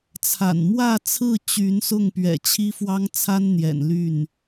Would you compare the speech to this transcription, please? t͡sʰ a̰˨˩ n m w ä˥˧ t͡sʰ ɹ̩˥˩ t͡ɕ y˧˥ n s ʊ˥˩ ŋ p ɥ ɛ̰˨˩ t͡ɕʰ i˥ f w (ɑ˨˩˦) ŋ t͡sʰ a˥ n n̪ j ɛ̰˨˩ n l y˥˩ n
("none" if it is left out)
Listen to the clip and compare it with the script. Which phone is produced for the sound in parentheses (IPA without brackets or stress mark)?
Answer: ɑ˥